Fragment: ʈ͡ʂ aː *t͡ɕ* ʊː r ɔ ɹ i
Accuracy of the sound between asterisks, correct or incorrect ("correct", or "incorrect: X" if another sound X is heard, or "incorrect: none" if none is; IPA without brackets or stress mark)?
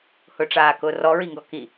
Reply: incorrect: k